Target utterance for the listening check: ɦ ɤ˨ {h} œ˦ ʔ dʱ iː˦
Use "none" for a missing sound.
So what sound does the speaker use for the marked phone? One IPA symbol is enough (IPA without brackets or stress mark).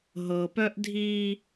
p